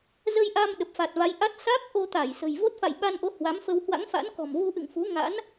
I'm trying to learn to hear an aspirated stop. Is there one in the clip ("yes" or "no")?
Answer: no